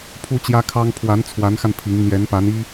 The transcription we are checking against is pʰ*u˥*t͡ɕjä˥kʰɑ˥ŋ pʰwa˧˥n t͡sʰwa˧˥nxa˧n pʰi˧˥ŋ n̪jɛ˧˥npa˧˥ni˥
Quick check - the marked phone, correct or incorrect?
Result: correct